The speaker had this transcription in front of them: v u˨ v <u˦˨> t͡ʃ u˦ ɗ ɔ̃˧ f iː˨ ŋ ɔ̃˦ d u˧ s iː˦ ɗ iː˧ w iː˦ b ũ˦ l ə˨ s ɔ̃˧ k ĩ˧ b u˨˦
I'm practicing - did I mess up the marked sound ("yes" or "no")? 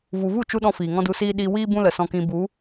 no